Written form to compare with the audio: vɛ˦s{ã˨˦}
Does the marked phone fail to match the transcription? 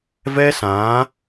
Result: no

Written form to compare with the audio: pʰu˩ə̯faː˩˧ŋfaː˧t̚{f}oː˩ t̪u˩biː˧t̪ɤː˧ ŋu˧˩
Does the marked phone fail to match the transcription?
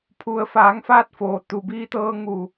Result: no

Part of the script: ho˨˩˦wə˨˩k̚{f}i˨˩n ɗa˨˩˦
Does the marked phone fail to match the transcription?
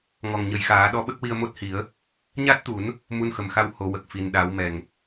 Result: no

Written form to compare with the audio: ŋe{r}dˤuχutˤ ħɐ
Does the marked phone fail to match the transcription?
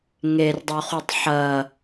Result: no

